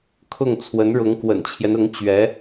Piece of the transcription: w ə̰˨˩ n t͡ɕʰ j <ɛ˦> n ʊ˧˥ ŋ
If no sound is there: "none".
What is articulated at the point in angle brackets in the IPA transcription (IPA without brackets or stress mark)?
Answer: ɛ˦